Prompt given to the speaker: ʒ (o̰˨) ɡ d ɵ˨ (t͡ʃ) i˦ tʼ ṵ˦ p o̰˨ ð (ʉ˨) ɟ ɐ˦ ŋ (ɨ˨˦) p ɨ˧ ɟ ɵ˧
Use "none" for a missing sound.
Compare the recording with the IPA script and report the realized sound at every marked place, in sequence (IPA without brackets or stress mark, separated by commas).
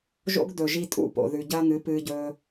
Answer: o̰˦, ʒ, ʉ˨, ɨ˨˦